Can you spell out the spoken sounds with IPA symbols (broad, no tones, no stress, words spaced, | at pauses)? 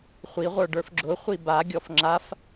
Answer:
χʷiʁʷə˞ ɖə˞fɡ͡ǁʊχʷi baɡʲɔf ŋ͡ǁaf